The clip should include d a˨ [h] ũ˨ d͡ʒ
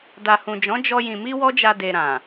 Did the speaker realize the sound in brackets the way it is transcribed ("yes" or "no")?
yes